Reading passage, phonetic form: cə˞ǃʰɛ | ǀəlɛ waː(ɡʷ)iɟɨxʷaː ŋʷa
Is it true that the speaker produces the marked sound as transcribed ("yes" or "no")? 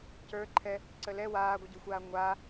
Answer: yes